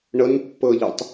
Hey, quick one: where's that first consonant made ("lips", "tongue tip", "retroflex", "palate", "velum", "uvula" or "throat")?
retroflex